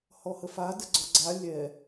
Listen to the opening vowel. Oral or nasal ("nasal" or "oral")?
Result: oral